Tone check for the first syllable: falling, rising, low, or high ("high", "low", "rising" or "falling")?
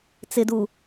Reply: low